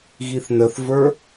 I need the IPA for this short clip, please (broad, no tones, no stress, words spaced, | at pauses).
ɣiθnəθvə˞